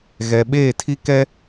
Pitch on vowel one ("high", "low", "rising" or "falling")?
low